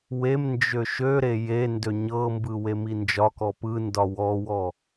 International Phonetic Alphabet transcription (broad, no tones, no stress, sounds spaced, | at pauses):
w e m n d͡ʒ ø ʃ ø ɾ e j e n d ø ɲ ɤ m b ɯ w e m i n d͡ʒ ɒ k ɔ p ɯ n d ɒ w ɔ w ɔ